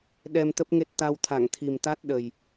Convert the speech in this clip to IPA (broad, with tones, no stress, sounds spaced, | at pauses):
ɗ ɛ˧ m t̪ ə˦˥ p̚ ŋ e˦˥ t̚ t̪ a˧ w t̪ʰ a˧˩ ŋ t̪ʰ i˨˩ m t̪ a˦˥ t̚ ɗ ə˨˩ j